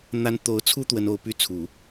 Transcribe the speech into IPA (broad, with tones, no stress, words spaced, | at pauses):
n̪a˥n t̪o˧˥ʊ̯t͡sʰu˥ t̪wə˥no˥ʊ̯ py˥t͡sʰu˨˩˦